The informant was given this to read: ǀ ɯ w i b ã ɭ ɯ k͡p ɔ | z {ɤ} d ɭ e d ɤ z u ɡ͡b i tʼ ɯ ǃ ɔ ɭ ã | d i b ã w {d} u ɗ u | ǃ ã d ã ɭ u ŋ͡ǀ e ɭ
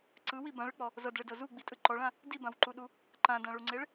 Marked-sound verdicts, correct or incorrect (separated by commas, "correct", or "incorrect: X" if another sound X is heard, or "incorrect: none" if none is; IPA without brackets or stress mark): correct, incorrect: ǃ